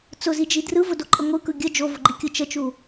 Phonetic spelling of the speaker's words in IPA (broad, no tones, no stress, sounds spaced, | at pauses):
t͡s ʊ z i d͡ʒ i d r ɯ v ʊ d o ǃʼ ə ŋʷ ɯ k ɯ ɡʲ ə d͡ʒ o v ʊ ɡ͡ǃ i kʲ ɯ t͡ʃ ə t͡ʃ u